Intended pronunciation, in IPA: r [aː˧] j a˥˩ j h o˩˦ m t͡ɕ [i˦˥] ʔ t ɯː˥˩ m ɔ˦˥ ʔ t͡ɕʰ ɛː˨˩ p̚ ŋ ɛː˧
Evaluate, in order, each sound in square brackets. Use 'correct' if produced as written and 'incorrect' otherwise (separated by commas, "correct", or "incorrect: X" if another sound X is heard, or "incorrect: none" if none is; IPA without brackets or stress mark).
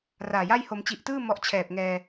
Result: incorrect: aː˨˩, incorrect: i˨˩